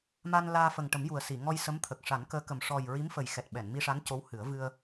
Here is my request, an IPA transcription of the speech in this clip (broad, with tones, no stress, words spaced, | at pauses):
ma˧nlaː˧ fə˨˩ŋ ʈə˨˩˦mju˨˩ə̯si˨˩˨ ŋɔ˧jsə˧˥mt̪ʰə˨˩k̚ ʂa˨˩˦nkəː˧˥kə˨˩m ʂɔ˨˩j ɹi˧˥mfə˨˩jxɛ˨˩t̚ ɓɛ˨˩˨nmi˧ʂa˧˥n co˧˥whɨ˨˩˦ə̯ vɨ˧ə̯